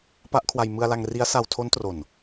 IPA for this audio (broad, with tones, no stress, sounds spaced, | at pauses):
p a˦˥ ʔ kʰ w a˧ j m ɯ˧ a̯ l a˧ ŋ r i˦˥ a̯ s a˧ w tʰ o˦˥ n t r o˨˩ n